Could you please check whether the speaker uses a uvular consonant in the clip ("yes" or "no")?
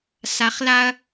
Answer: yes